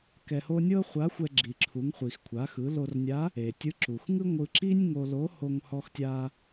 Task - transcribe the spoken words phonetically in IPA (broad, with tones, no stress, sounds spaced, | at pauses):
k ɛ˧ h o˥ nʲ ɤ˥ χʷ a˧˥ xʷ ɛ˧ ɡ͡ǁ i˩ ǁʰ u˩˧ ŋ χʷ i˩ x kʷʰ a˩˧ x ɯ˩˧ l o˧ r nʲ a˧˥ | e˩ tʲ ɯ˧˥ ǁ u˩ x ŋ ɯ˥ ŋʷ ɯ˧ ǁ i˥ nʲ ŋ o˧ l o˧˥ h o˧ ŋ h ɔ˧ x tʲ a˧